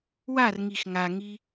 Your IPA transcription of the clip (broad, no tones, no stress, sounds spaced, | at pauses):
w a r ŋ i x ŋ a ŋ i